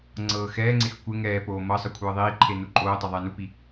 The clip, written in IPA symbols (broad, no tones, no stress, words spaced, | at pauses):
ŋ͡ǀɤːxɛːŋ͡ǀex kʷe ŋɛːpoː mɤsˤə kʷʰɤːðˤiːǃʰe nuǃʼoːtˤɛ ðˤɛːnupi